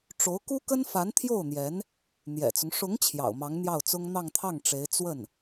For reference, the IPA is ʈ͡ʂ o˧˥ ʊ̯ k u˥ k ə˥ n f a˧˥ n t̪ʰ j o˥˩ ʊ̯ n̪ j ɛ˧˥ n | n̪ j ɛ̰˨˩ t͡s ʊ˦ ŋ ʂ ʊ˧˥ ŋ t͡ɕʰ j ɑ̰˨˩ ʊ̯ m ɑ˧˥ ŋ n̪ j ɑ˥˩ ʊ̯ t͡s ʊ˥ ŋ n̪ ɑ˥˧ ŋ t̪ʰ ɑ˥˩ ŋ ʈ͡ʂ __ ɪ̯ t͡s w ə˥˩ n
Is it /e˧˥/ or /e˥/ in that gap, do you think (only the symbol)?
e˧˥